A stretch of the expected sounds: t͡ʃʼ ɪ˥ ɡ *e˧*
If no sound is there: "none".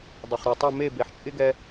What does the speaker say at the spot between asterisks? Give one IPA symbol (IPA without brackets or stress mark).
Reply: ɛ˧